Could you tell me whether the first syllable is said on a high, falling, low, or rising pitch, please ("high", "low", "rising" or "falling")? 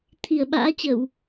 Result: low